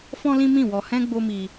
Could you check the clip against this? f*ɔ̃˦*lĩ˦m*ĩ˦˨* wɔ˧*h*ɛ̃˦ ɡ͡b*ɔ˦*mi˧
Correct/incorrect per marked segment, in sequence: correct, correct, correct, incorrect

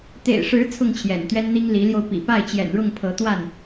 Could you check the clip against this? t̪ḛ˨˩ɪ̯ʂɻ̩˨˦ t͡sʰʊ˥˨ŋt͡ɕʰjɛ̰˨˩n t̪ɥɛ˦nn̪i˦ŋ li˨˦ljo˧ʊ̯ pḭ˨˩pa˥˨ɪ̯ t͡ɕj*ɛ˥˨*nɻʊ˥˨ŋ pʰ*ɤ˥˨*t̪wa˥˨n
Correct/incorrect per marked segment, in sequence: incorrect, incorrect

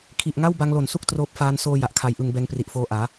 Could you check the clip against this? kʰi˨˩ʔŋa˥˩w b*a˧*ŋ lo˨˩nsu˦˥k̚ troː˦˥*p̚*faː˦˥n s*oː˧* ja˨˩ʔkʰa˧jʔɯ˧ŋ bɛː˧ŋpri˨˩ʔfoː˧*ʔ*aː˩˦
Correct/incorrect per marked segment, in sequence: incorrect, correct, correct, correct

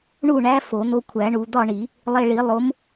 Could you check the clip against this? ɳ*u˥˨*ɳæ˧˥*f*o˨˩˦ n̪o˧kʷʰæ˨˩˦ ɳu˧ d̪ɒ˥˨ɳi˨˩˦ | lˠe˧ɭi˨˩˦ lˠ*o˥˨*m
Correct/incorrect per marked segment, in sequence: correct, correct, incorrect

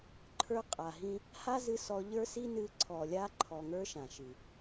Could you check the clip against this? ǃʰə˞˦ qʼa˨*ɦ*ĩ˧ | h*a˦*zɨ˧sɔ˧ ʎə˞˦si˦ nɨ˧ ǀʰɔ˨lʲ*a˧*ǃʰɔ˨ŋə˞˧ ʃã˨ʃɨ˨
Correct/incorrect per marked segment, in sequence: correct, correct, correct

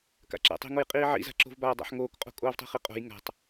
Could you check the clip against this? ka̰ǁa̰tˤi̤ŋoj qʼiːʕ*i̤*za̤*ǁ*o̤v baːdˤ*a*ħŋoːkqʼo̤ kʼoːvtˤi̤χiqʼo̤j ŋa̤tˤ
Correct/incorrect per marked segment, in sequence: incorrect, correct, incorrect

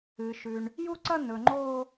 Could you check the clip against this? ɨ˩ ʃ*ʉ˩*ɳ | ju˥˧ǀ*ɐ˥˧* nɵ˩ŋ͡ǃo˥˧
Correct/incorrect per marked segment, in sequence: correct, correct

